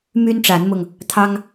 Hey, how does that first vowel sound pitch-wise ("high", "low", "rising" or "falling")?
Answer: high